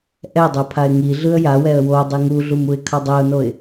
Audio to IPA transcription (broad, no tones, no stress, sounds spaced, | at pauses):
ʔ ɛ dˤ ɛ pʰ a ɪ̯ ŋ i ɮ ɯ ə̯ j a w ɛ ə̯ w o dˤ i ŋ u ɮ u m u ɪ̯ kʰ ʌ dˤ ɛ ʊ̯ n o ɪ̯